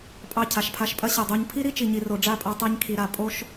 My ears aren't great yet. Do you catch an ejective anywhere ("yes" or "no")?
yes